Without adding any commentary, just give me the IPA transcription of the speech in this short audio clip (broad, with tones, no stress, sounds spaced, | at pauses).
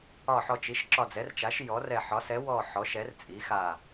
ɒ˧˩ ħ ɔ˧˩ t͡ʃ i˩˥ ʃ ǁ ɒ˧˩ d͡z ɛ˩˥ r t͡ʃ a˩˥ ʃ j ɔ˩˥ r ɛ˧˩ ħ ɒ˩˥ s ɛ˩˥ w ɔ˧˩ ħ ɔ˩˥ ʃ ɛ˩˥ r t͡sʼ i˩˥ x a˧˩